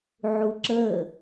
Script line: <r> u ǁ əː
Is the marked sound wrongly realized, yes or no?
yes